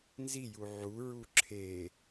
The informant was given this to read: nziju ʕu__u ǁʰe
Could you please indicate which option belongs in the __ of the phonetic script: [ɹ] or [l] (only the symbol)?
ɹ